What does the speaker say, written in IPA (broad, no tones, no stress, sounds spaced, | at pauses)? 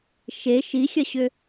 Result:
ʃ e ʃ i xʲ ɐ ɕ ʏ